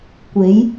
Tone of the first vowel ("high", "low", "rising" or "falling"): rising